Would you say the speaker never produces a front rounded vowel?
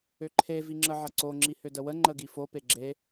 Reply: no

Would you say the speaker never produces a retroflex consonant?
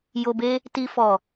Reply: yes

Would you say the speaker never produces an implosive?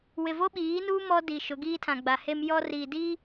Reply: no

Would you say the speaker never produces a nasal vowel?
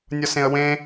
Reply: no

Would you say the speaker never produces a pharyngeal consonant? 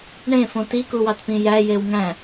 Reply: yes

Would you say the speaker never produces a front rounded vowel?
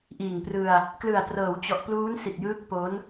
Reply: yes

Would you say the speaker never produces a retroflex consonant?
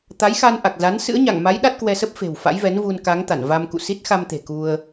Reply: yes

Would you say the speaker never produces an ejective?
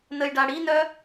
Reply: yes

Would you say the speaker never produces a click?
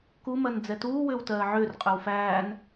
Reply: yes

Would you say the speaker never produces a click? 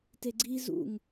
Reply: no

